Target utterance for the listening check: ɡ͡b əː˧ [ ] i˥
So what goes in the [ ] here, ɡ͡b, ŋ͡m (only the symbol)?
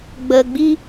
ɡ͡b